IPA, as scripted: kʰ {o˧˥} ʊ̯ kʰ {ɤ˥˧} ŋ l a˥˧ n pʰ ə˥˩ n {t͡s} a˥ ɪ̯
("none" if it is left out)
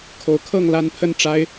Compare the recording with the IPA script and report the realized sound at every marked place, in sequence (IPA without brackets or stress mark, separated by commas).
o˧˥, ɤ˥˧, ʈ͡ʂ